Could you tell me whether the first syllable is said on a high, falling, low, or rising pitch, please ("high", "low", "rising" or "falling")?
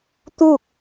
falling